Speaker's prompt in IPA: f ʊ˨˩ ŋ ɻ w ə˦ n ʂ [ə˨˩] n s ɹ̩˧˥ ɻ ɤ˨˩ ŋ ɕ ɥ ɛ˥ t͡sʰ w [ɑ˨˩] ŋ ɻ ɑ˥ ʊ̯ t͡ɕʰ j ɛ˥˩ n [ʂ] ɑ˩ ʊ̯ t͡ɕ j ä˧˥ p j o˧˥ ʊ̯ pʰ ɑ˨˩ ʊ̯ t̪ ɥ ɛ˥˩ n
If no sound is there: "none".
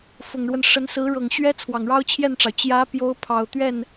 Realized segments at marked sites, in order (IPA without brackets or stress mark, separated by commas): ə˧˥, ɑ˨˩, ʈ͡ʂ